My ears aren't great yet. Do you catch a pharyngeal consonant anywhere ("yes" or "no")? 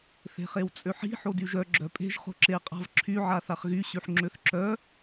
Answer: yes